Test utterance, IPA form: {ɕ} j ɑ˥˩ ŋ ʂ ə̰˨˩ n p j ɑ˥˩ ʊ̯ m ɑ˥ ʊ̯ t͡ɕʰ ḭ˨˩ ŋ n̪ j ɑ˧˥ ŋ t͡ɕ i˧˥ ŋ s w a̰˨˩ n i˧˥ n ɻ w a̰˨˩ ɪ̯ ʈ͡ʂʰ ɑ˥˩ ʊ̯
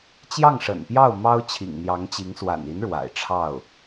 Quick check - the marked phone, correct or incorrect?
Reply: incorrect